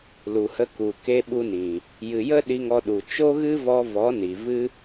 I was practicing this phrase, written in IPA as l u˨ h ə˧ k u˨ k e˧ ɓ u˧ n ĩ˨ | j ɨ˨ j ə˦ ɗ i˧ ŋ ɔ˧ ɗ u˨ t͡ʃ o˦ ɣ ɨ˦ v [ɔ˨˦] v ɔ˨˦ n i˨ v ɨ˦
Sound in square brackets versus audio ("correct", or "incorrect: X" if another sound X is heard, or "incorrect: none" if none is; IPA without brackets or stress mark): incorrect: ɔ˧